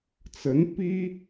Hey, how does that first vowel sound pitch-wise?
rising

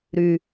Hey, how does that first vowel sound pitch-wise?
low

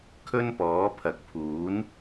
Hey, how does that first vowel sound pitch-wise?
high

